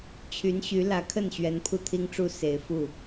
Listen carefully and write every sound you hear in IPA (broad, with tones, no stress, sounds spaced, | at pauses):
t͡ɕʰ y˧˥ n ɕ y˧˥ l ä˧˥ kʰ ə˥˩ n ɕ ɥ ɛ˧˥ n pʰ u˥˩ t̪ʰ i˥ ŋ ʈ͡ʂ u˥ s e˨˩ ɪ̯ f u˥˩